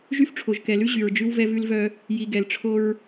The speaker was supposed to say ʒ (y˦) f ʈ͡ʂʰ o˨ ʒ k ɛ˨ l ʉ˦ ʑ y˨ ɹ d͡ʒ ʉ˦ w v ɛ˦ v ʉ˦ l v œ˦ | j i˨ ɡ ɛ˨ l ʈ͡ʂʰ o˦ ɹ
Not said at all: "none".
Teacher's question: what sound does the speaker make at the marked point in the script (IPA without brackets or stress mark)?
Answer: y˦